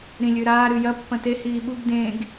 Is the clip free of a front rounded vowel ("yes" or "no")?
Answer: yes